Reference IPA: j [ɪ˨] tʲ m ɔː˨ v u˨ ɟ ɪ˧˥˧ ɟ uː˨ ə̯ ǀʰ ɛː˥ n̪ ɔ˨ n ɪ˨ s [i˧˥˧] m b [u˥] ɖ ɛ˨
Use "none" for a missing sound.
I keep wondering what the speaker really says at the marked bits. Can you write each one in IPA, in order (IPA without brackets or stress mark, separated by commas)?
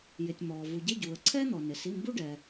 ɪ˨, i˧˥˧, u˥